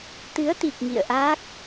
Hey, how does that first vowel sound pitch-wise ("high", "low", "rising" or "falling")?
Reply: rising